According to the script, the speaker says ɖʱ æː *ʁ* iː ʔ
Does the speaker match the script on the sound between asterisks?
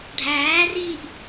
no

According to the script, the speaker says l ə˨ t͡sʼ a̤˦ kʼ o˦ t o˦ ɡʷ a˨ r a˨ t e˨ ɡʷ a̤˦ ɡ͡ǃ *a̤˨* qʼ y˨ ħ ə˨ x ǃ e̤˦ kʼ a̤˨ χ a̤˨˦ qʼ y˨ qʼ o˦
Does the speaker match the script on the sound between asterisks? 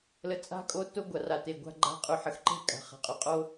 no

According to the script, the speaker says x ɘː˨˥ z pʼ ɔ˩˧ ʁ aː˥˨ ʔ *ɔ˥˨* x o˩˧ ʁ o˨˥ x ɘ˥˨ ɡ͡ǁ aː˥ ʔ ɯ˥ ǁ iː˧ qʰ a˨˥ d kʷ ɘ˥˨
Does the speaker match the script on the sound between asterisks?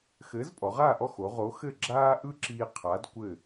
yes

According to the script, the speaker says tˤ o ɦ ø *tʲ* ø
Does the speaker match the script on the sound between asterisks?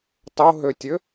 yes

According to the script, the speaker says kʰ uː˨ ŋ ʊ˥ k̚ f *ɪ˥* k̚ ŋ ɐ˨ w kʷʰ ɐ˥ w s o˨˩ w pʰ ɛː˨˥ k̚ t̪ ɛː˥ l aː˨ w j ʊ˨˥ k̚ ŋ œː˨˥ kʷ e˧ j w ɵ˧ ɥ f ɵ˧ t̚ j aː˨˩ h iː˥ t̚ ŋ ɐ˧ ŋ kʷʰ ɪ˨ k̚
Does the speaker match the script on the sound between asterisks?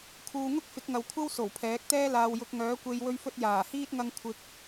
no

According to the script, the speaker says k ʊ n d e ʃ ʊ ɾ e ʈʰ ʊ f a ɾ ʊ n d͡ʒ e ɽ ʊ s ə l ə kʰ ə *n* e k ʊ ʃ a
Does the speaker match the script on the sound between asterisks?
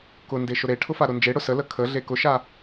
no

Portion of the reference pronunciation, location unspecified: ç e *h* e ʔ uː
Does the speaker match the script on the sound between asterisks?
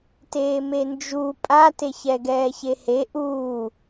yes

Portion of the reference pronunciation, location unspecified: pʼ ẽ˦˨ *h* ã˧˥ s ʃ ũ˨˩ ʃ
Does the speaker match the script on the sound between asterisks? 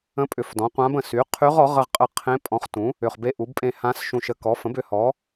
yes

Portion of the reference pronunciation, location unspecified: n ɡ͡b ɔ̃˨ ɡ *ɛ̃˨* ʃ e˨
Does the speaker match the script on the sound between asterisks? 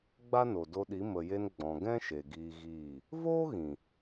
no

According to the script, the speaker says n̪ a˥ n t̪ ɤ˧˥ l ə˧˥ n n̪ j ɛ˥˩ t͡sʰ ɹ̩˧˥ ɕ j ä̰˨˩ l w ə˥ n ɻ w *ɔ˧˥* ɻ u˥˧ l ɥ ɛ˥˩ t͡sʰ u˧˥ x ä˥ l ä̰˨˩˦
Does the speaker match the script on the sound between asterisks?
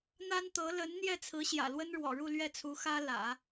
no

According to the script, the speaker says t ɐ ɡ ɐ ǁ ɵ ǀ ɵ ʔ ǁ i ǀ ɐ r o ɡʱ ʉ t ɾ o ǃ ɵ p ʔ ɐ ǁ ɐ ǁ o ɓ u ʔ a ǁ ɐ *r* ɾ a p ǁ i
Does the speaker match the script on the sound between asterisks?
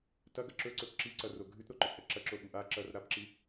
yes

